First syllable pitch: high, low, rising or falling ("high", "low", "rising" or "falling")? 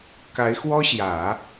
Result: rising